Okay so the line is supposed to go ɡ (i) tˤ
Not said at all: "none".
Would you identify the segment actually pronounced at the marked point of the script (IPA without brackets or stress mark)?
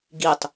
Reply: i